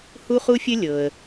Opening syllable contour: high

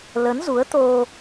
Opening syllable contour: rising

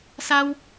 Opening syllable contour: high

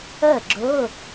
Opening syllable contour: falling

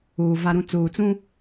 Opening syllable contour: low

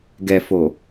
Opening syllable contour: low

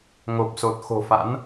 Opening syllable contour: low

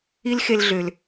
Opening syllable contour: high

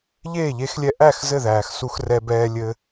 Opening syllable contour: falling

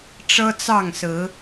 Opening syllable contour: high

